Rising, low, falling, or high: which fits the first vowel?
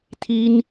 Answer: high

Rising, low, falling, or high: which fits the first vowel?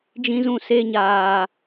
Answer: high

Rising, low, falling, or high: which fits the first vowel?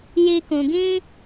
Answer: low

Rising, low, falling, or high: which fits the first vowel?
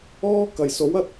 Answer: high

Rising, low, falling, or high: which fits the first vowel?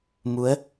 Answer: rising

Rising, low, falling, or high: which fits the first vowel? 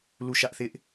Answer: falling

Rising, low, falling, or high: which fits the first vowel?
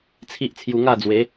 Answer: high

